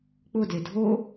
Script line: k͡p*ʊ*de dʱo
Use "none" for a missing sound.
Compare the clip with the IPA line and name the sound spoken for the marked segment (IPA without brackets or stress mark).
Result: ʊ